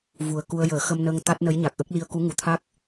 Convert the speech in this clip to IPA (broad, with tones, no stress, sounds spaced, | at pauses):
v u˨˩ ə̯ k u˧ ə̯ j əː˨˩˦ x ə˧ m n ə˧ ŋ t̪ a˦˥ t̚ n ə˧˥ j ɲ a˨˩ k̚ ʔ ə˦˥ k̚ l i˧ ə̯ k u˧˥ ŋ u˨˩ t̪ʰ a˦˥ k̚